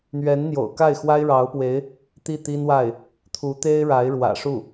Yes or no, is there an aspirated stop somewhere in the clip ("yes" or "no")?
yes